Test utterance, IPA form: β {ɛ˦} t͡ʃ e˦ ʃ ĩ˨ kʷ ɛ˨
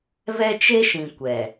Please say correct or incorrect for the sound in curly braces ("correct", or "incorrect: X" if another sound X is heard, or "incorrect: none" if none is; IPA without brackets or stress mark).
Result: correct